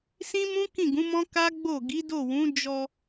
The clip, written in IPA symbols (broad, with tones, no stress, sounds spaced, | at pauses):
s ĩ˦ m ũ˦ k ĩ˦˨ ɡ ũ˨˦ m ɔ̃˦ k a˦ ɡ͡b o˦˨ ɡ i˨˦ d o˦˨ w ũ˨˦ d͡ʒ ɔ˧